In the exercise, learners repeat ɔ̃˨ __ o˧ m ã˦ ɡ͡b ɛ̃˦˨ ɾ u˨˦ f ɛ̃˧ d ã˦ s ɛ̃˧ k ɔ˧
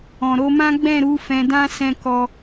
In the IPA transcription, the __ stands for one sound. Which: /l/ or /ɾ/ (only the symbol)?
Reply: ɾ